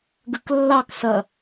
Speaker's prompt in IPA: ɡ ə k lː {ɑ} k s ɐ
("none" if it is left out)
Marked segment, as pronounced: ɑ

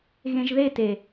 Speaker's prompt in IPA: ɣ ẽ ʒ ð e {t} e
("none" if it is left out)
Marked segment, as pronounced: t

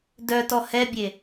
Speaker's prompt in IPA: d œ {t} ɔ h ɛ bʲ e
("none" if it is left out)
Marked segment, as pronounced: t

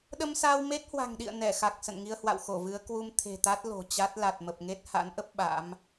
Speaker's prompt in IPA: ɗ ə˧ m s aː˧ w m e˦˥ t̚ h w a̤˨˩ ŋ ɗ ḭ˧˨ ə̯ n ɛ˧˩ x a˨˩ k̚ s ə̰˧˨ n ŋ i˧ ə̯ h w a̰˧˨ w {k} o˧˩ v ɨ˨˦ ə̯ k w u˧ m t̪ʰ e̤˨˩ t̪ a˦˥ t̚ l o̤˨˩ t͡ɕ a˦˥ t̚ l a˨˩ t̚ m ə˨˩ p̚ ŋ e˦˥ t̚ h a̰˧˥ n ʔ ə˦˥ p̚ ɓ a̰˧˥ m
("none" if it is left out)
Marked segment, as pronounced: x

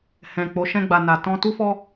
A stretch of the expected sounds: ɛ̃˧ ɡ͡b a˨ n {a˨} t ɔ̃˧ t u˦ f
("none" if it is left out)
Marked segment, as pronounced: a˨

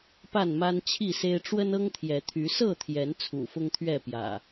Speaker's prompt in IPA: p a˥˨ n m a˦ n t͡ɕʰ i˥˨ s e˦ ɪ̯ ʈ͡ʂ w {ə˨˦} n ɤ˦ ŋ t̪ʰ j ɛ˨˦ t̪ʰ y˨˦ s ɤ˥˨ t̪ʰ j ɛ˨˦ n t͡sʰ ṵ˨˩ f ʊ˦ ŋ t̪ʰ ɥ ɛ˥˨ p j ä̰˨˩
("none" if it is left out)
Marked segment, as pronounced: ə˦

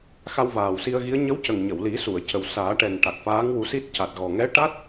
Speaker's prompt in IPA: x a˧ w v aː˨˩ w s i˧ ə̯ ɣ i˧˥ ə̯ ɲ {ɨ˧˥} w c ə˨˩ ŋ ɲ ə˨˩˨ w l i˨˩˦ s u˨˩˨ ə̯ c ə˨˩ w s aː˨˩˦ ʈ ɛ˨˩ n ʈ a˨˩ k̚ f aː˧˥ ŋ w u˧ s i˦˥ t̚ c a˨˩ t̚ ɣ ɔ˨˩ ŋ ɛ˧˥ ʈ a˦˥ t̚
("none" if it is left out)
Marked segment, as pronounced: ə˧˥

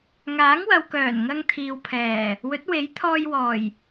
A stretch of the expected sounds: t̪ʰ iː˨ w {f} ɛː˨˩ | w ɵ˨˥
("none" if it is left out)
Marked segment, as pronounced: pʰ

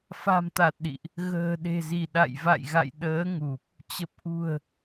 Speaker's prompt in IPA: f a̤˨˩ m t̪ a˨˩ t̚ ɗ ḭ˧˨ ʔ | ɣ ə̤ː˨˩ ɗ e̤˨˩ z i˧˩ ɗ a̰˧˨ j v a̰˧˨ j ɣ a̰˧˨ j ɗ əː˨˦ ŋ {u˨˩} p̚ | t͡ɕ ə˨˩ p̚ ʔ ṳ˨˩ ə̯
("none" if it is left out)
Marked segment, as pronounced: u˨˩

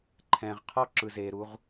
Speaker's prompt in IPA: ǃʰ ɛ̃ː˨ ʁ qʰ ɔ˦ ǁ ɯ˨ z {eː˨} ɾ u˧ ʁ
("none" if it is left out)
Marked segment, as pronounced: eː˨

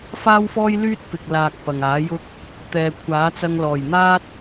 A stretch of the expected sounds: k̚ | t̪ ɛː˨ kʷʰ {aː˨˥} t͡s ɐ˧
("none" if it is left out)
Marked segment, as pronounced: aː˨˥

